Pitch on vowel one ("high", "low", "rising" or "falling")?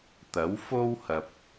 rising